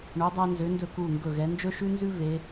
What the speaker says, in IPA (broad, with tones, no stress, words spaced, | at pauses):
ɳo˩˧dˤæ˧nzø˩˧ndɵ˧˩ ku˧˩ŋɡɵ˧˩ ɣɛ˩˧nd͡ʒɵ˥ʃʉ˥nzʉ˥ ve˩˧